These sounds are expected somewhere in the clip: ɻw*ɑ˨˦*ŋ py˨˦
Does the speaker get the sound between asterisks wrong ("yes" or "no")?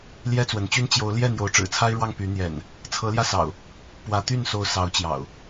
yes